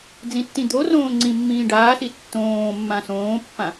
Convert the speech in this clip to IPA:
d͡z ĩ tː ĩ d̪ o r õː ŋ͡ǀ ĩ mː ĩː ɖ aː s i tː õː mː ã s õː pː ã

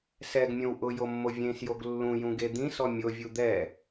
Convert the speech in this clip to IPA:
s ɛ ɡ mʲ õ w ʔ ʊ j o mː o vʲ ẽ s j o ɡ lː ũ j ũ ɡ e d̪ ĩ s ɔ mʲ o vʲ u d̪ ɛ

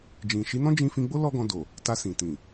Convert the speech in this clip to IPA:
d͡ʒ ĩ˨ ʃ i˨˦ n ɔ̃˦ d͡ʒ ĩ˧ f ĩ˧ ɡ͡b o˦ l ɔ˦ ɡ ɔ̃˧ d o˨ | t a˧ s ĩ˨ t ĩ˨

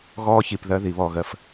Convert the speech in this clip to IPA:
ɣ ɔː˦ ç i˨ p ð ɜ˦ ð i˨ β ɔ˦˨ ɣ ɜ˦ f

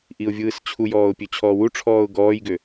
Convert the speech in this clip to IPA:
ʔ i ʊ̯ vʲ ɯː s t͡ɕʰ u j ɔː ʊ̯ pʲ ø t͡ɕʰ ɔː w u ʈ͡ʂʰ ɔː ʊ̯ ɡ ɔː j ɡ ø

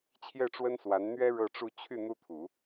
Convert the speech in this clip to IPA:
t͡ɕʰ j ɛ˥˩ ʈ͡ʂ w ə˥ n s w a˧˥ n n̪ ɥ ɛ˥ ɻ ɤ˥˧ ʈ͡ʂ u˥˧ t͡ɕʰ y˥˩ n̪ u˥ t̪ʰ u˨˩˦

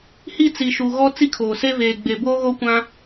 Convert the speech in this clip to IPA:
h i˦˨ t͡s i˨ ʃ u˨ ɣ ɔ˦ t͡s i˦ kʰ oː˨ s e˦ v eː˨ ɡ͡b e˨ b oː˦ ɣ o˦ kʷ ã˦

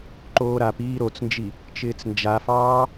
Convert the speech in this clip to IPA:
ǃ oː ɾ a p iː ɾ o t͡s n d͡ʒ i | t͡ʃ ɪː t͡s n d͡ʒ a f ɑː

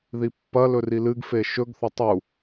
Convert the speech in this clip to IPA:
ð i pː ɐ l ɵ r i l ɨ ɡ f e ʃ ɵ ɡ θ ɐ tˤ u

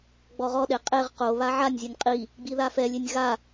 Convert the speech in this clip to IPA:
ɡ͡b ɔ ʁ ɔ ɗ e qʼ e ʁ q o β a ʕ a nʲ zʲ ɛ nʲ qʼ i | ɡ͡b i ð a f ɛ lʲ e nʲ ɣ a

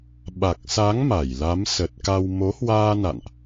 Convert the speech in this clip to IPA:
ɓ a˨˩ k̚ s a˨˦ ŋ m a˧˩ j l a˨˦ m s ə˨˩ t̚ k a˧ w m o˨˦ h w aː˧ n a̰˧˨ n ʔ

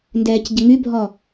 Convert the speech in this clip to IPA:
n d ɛː c ɟ ə ŋ y bʱ ɔ

